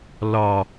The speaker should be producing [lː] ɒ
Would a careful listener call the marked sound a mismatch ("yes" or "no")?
yes